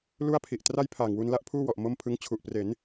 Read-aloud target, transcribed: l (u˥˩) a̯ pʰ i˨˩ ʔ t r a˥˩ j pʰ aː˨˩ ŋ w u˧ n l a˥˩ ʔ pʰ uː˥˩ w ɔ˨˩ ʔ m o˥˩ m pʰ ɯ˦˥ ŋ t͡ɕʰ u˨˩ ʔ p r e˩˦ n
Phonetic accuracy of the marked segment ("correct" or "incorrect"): correct